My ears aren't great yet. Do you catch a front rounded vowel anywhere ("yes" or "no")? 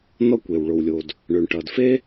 yes